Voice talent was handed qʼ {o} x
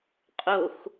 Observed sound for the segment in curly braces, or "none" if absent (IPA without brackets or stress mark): o